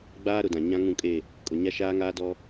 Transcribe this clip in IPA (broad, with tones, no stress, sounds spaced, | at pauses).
ɡ͡b aː˦ ɾ ʊ˨ d ã˨ ɲ ã˦ ŋ ũ˦˨ kʼ e˦˨ | kʼ ʊ˨ ɲ a˦ ʃ aː˦ ŋ aː˦ d ɔ˦